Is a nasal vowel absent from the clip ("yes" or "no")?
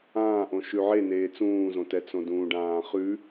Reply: no